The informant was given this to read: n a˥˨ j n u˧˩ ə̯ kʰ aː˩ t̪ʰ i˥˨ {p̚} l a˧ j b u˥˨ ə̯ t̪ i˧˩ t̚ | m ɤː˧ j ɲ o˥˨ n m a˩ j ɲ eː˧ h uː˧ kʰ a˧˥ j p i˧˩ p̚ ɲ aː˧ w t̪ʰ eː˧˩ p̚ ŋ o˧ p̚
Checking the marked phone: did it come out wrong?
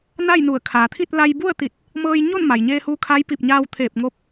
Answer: yes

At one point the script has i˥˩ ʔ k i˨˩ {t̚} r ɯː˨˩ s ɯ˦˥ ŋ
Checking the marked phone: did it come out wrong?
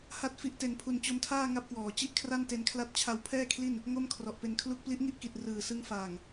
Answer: no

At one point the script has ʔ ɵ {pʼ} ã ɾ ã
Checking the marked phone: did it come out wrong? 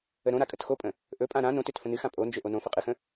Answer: no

